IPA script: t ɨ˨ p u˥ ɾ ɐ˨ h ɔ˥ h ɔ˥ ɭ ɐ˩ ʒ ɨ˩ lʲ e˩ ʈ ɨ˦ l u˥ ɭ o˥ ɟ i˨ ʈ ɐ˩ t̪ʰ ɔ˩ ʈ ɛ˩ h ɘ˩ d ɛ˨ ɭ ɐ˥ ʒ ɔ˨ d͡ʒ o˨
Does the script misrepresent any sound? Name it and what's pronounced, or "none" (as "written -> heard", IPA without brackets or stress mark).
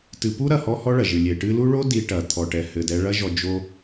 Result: ɟ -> d